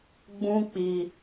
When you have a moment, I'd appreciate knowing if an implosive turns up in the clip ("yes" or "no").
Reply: no